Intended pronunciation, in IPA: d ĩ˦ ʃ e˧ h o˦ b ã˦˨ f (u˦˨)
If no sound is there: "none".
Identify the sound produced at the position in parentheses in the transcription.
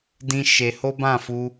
u˧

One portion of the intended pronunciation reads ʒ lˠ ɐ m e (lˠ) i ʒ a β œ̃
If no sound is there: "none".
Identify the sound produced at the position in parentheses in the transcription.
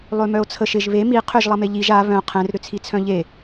ʎ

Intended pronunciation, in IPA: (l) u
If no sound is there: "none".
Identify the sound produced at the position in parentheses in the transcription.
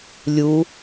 lʲ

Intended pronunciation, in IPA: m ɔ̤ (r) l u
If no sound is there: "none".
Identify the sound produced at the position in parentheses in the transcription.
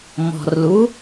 r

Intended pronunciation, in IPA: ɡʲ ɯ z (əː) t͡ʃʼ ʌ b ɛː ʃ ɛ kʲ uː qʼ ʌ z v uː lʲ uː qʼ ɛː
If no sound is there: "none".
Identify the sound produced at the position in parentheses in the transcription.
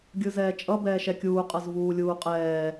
ɛː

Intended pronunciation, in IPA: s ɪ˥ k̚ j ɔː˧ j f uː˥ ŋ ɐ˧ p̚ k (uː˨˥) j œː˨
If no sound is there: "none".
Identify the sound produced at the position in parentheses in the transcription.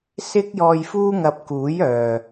uː˨˥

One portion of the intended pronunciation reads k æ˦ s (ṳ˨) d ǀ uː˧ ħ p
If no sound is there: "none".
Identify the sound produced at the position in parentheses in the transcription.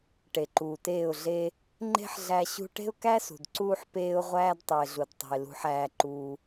ṳ˨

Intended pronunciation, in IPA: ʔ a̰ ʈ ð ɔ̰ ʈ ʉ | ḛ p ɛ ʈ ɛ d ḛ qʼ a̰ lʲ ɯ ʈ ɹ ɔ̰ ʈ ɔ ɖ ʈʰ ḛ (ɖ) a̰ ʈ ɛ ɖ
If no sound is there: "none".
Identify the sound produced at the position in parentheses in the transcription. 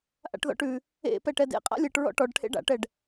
ɖ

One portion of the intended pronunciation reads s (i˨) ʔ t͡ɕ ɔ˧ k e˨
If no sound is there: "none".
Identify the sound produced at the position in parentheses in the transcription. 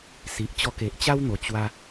i˨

